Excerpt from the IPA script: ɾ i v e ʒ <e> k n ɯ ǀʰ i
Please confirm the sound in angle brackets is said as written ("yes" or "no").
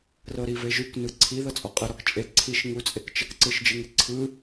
no